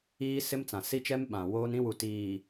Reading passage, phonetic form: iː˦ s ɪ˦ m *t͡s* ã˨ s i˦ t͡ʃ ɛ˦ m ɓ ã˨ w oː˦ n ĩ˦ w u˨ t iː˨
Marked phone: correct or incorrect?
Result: correct